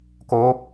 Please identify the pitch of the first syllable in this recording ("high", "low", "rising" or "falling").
rising